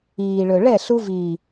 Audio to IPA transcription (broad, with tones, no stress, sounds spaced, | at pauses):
iː˨ ɭ ɵ˨ ɭ ɛ˦˨ ɬ u˧ v iː˨